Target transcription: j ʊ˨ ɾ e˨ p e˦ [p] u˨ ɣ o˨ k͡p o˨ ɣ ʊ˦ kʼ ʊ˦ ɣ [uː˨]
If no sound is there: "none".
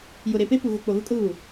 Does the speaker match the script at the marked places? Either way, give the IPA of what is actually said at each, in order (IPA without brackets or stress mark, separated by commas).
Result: p, u˨